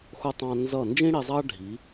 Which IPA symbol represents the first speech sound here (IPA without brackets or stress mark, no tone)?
x